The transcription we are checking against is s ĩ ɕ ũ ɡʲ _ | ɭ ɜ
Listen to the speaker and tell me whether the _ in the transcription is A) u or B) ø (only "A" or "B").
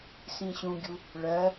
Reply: A